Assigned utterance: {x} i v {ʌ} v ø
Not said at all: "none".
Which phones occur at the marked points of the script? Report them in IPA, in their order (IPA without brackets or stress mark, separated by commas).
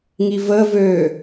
ŋ, ə